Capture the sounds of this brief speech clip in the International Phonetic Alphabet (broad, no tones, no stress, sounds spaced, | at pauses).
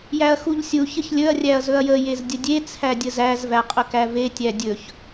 j æ ɐ̯ x u ʎ sʲ u ç ə ç lʲ ɵ ɐ̯ rʲ æ ɐ̯ z ɵ ɐ̯ j ə j e z dʲ ə dʲ e t͡sʰ æ dʲ ə z æ z v æ qʼ ɵ k æ v e tʲ æ dʲ ɵ ç